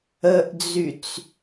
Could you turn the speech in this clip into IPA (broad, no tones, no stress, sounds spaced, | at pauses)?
ə ʔ d͡z y t͡s